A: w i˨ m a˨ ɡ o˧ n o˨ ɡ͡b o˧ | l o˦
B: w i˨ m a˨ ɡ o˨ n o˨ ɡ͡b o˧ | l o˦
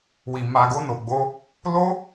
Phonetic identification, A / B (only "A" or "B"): A